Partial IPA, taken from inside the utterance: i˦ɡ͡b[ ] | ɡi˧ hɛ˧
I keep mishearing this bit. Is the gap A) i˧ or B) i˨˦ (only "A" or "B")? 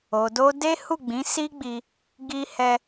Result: A